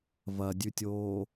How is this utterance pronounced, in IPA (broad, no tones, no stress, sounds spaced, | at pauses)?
v ɐ dʲ ʉ tʲ oː